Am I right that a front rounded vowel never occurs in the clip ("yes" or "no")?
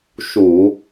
yes